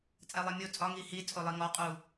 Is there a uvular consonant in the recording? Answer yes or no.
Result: yes